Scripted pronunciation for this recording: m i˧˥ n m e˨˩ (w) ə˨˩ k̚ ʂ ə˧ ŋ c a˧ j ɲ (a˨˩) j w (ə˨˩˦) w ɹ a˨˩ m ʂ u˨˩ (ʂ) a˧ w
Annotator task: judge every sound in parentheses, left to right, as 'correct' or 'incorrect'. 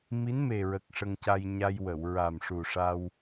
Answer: incorrect: ɹ, incorrect: a˧, incorrect: ə˨˩˨, correct

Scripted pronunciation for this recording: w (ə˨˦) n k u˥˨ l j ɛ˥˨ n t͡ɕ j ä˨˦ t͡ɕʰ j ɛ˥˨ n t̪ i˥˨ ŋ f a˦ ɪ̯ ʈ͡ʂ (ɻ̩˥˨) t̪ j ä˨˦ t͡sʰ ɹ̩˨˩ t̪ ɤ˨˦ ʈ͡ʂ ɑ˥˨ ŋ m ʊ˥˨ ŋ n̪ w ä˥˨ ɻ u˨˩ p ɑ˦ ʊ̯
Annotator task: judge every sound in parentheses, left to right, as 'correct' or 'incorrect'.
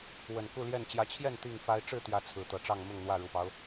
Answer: incorrect: ə˨˩, correct

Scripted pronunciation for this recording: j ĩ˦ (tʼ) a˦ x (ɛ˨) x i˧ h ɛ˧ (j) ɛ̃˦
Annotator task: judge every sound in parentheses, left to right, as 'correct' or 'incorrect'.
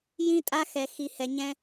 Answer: correct, incorrect: ɛ˧, incorrect: ɲ

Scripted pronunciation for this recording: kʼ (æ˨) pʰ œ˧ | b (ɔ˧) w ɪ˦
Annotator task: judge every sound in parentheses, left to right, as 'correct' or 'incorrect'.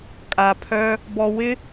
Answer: incorrect: a˨, correct

